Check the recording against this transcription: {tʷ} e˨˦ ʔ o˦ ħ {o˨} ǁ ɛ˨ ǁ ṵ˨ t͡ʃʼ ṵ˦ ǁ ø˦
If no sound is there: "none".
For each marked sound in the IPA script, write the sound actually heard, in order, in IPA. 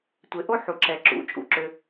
tʷ, u˨

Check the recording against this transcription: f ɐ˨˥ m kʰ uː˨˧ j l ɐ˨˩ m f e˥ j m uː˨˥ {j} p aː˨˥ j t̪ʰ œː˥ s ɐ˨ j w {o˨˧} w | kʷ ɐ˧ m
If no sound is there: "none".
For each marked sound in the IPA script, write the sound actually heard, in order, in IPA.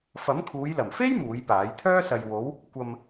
j, o˨˧

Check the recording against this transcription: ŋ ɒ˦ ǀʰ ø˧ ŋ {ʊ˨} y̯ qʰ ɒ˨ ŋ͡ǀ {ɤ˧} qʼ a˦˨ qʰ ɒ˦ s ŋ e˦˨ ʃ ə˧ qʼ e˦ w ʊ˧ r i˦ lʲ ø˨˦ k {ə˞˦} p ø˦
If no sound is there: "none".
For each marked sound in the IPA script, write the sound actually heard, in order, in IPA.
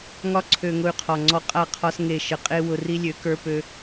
ʊ˧, ɔ˧, ə˞˦

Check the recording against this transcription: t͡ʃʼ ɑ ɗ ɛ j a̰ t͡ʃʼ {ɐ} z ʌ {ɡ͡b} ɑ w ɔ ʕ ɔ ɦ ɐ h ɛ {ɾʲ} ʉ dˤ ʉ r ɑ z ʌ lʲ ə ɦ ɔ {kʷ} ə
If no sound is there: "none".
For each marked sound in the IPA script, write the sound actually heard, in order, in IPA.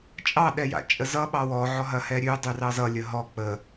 ə, ɓ, ɾʲ, k͡p

